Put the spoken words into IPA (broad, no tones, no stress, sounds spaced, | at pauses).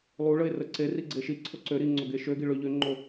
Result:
lˠ u ɭ ə e̯ r ə ǀ e r i ɡ͡ǀ e ʃ i ǀʰ o ǀ ø ɾ i ŋ͡ǀ o ɡ e ʃ ø ɡ i ɭ ø ʎ ø ŋ͡ǃ o